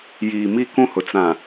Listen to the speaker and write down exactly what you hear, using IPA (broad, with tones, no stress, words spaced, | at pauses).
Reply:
jiː˨mi˦kũ˦hʊ˨ t͡sã˨